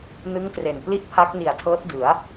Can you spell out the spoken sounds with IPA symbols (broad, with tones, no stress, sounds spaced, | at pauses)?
n ɯ˦˥ ŋ t r e˨˩ n p l i˥˩ ʔ pʰ a˦˥ k̚ n i˨˩ a̯ tʰ ɤː˦˥ t̚ d ɯ˩˦ a̯